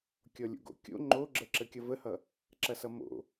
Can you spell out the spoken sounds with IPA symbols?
kʲ ɔ lʲ o̰ ɡ o̰ kʲ o̰ ŋ͡ǃ o ɡ͡ǁ ə ǁ ə kʲ ʌ v ə h ʌ | ǁ ɐ s ʌ m o̰

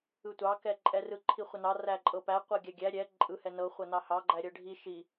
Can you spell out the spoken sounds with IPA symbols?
ɯ tʷ ɑ k ɛ ǃʼ ɛ r ɯ ǃʰ i χʷ ə n ɑ r æ ǃʼ ɤ p æ qʷ ɤ ɡʲ æ ɡʲ æ ɾʲ ɛ ǃʼ ɯ h ɛ n ɤ χʷ ɤ n ɑ h ɑ ɡ͡ǃ æ ɾʲ ɤ ɖʱ i ʃ i

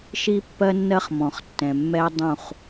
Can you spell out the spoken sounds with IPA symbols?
ʃ i˦ pː ɜ˦ nː ɜ˦ χ m ɔ̃˨ χ tː ɛ̃˨ mː ɛ˦ dˤ ũ˦˨ χ

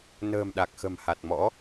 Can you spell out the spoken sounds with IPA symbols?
n ə̤ː˨˩ m ɗ a˨˩ k̚ x ə̤˨˩ m h a˨˩ t̚ m ɔ̰˧˥

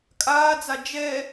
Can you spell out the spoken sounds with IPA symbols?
kʼ aː d͡z a d͡ʒ ɛ

